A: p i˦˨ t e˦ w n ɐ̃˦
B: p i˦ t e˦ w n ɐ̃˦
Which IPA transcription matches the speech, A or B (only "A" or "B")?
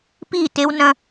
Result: A